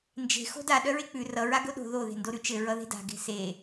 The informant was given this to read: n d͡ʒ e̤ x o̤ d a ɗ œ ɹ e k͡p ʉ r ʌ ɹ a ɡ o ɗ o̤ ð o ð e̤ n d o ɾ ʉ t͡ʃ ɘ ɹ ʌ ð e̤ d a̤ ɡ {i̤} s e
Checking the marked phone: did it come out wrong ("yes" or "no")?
yes